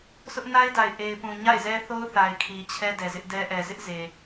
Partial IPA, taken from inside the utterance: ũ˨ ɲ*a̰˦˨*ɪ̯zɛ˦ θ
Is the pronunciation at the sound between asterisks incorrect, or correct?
correct